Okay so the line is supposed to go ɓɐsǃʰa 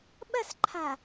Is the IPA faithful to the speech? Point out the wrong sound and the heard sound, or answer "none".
none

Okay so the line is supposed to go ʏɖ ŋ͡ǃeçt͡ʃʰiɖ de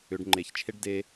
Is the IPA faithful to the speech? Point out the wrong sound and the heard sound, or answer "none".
i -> e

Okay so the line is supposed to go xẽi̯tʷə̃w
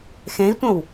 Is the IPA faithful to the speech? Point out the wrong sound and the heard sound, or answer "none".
none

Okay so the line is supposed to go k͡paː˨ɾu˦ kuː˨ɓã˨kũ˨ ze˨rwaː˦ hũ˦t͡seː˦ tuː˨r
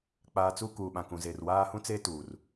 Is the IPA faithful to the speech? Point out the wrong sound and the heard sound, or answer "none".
ɾ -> t͡s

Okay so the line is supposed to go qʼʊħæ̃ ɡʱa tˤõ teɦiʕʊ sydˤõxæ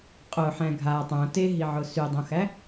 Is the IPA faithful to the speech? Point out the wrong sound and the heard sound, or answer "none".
none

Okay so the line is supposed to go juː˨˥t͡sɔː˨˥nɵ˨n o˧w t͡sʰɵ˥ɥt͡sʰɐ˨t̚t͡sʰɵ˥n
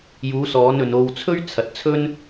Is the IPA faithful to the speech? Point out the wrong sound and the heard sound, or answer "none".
t͡s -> s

